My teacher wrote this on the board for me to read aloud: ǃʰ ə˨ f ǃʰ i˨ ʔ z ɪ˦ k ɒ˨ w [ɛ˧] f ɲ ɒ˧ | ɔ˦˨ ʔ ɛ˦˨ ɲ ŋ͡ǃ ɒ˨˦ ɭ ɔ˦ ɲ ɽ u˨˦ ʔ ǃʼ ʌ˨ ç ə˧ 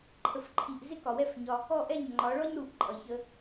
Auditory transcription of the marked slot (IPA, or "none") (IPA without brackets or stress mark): ɛ˦